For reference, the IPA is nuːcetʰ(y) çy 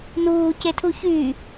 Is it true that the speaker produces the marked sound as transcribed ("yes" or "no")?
no